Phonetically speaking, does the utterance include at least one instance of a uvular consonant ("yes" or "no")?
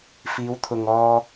no